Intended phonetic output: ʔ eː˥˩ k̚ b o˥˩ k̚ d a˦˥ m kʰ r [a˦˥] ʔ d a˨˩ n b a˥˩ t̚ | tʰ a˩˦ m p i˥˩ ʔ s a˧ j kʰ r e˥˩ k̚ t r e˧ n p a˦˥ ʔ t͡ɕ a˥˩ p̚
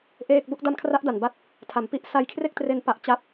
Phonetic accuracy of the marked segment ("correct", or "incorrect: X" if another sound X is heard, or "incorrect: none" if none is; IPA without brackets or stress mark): correct